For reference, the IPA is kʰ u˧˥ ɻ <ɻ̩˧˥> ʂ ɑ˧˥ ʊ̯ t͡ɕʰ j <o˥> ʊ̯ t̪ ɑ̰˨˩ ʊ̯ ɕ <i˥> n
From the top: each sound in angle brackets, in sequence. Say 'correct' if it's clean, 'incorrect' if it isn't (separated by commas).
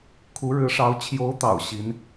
correct, incorrect, incorrect